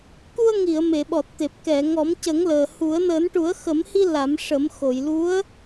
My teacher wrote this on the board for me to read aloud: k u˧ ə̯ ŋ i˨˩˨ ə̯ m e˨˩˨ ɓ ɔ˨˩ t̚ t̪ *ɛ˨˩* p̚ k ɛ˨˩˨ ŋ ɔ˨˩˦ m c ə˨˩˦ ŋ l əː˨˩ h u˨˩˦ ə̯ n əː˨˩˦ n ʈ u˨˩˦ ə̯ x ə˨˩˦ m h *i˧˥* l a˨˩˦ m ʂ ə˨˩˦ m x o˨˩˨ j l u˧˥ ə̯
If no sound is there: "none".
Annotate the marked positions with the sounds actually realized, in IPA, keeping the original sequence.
e˨˩, i˧

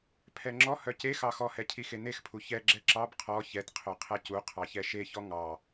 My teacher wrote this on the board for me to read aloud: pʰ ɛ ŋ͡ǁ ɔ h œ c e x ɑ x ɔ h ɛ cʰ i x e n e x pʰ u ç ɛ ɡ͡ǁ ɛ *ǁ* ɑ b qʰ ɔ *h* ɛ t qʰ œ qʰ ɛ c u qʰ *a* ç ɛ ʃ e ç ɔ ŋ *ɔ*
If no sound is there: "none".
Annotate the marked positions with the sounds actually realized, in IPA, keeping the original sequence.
ǁ, ç, ɑ, ɑ

